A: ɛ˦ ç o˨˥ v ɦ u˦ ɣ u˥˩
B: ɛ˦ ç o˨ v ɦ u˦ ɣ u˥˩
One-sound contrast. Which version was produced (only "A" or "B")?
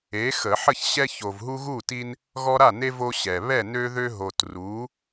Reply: B